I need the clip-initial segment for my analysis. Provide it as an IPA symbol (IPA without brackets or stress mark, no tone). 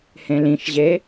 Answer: h